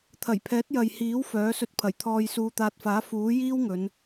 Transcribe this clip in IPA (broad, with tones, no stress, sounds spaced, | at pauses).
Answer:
t̪ʰ ɐ˨˩ j pʰ ɛː˨˥ t̚ j ɐ˨ j h iː˨˥ w f œː˨˥ s ɵ˧ t̚ pʰ ɐ˨˩ j t̪ʰ ɔː˧ j s uː˧ t̪ aː˧ t̚ f aː˨˥ f uː˨˥ j iː˥ w ŋ ɵ˨˧ n